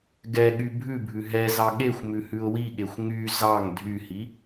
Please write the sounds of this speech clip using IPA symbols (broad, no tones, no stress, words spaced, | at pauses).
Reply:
ɡɛɠy bʱʉbʱʉ ɦɛzɑ ɠexʷ mʉhʉʊ̯wiɠexʷ ŋy zɑŋ dʱyhi